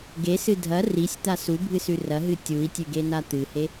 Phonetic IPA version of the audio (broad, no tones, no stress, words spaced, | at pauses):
ɡesɨ dʱɐ risʲt̪a subʱɨsʉ rɐɦɨ tʲui̯tʲʉɡena t̪ɨhe